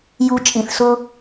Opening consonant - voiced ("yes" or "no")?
yes